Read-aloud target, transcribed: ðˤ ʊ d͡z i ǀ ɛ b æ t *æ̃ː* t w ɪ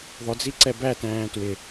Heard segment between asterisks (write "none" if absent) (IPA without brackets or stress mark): æ̃ː